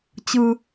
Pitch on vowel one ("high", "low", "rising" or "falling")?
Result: high